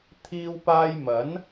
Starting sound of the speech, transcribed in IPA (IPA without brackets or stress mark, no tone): t̪ʰ